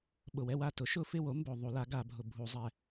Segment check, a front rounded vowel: absent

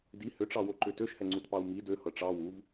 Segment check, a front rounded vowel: present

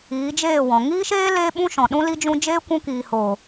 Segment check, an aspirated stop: absent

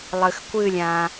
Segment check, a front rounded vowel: absent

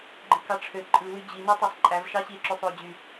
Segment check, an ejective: present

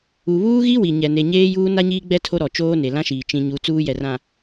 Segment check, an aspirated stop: present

